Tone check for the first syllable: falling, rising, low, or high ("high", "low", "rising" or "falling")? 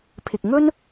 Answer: low